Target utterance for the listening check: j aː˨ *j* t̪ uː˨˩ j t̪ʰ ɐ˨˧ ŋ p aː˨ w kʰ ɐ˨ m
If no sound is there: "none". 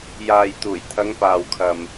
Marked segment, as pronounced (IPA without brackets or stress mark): j